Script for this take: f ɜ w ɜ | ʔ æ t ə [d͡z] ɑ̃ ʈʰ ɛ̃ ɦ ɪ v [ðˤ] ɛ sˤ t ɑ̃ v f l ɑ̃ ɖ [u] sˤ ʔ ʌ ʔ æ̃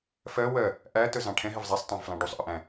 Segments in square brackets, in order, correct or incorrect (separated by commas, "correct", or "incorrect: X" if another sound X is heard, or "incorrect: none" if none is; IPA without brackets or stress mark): incorrect: z, incorrect: zˤ, correct